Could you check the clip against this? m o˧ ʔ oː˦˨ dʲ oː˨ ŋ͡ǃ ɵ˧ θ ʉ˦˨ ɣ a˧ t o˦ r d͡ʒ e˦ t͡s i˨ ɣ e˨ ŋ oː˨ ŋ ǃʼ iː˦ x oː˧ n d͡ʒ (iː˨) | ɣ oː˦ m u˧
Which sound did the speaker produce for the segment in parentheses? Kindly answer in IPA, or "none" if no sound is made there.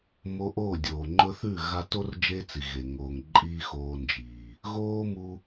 iː˨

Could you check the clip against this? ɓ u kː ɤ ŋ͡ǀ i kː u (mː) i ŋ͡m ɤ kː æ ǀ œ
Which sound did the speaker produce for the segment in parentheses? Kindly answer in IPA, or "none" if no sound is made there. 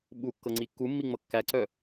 mː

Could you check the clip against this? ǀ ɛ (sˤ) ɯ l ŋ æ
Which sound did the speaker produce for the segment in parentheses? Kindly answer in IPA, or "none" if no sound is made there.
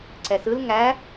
s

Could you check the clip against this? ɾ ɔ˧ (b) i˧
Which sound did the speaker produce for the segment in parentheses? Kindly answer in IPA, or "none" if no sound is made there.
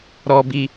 b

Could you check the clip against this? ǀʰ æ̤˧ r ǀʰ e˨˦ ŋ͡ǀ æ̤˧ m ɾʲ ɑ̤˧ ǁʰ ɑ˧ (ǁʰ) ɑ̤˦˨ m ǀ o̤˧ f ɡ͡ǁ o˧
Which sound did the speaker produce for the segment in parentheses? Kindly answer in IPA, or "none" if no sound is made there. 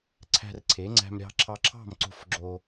ǁʰ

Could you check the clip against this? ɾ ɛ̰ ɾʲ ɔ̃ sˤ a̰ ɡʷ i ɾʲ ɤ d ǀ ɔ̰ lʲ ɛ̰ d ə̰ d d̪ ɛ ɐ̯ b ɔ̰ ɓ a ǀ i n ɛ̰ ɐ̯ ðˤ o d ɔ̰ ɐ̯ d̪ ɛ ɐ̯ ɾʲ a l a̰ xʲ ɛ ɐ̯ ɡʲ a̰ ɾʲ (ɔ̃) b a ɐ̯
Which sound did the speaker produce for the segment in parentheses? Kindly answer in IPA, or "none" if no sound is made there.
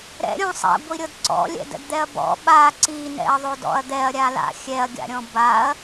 ɔ̃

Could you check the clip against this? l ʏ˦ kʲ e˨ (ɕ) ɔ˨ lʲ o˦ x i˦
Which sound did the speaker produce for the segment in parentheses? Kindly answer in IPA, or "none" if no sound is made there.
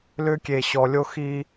ɕ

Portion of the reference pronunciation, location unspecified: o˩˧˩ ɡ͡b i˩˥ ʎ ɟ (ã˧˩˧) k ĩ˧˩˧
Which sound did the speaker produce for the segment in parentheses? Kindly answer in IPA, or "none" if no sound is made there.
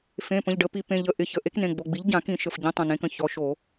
ã˧˩˧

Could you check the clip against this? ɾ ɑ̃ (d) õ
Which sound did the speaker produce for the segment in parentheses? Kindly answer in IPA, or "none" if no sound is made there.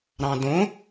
d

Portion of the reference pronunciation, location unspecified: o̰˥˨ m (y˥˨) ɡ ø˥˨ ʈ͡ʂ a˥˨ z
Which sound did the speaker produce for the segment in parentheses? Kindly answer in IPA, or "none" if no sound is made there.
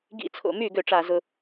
y˥˨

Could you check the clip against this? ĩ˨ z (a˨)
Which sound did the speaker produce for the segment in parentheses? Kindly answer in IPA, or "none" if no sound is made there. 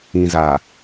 a˨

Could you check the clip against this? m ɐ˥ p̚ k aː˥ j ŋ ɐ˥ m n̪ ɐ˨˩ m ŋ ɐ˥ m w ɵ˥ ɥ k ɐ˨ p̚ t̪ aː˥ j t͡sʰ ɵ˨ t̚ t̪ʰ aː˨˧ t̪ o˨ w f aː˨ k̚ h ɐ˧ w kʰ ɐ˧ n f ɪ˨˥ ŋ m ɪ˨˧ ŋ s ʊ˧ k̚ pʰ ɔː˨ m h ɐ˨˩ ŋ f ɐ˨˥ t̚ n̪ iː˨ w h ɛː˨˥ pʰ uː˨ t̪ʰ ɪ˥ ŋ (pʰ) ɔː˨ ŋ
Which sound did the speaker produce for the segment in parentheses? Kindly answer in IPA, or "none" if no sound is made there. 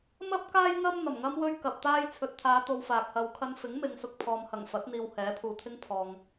pʰ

